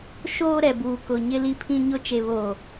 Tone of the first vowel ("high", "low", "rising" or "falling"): high